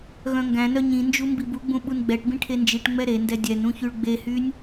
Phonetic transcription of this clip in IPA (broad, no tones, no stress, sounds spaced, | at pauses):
ɣ œ̃ ŋ ɡ æ̃ n œ ɲ ĩ n d͡ʒ u m b i b u ɡ͡b ũ ɓ u n ɡ͡b ɛ ʈ b ĩ ʈʰ e n d͡ʒ i ʈ ŋ͡m ɛ ɾ e n d ɛ dʲ ɛ n ũ ç y ɭ ɡ͡b e h y nʲ